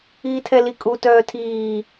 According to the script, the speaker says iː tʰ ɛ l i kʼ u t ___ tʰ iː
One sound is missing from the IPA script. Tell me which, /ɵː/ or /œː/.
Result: œː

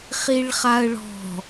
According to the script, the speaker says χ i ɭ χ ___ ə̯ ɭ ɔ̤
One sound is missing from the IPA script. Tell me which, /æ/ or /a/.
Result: a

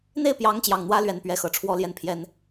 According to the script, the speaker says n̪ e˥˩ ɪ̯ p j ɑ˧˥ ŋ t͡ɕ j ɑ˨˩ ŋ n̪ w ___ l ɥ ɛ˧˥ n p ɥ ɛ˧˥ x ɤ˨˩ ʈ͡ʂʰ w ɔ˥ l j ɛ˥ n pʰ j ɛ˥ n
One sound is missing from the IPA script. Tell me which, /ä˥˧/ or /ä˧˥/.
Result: ä˧˥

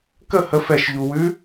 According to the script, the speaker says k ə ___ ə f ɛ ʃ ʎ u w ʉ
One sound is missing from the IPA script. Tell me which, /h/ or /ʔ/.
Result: h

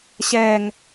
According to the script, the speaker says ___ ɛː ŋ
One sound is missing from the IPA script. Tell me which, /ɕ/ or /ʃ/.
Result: ɕ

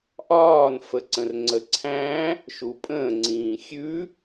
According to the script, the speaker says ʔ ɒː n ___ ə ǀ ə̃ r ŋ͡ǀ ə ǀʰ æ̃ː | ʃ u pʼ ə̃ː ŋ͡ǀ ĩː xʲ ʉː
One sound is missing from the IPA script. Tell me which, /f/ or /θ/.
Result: f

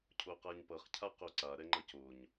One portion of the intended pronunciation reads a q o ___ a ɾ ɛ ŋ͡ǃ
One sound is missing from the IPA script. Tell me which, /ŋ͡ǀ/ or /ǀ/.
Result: ǀ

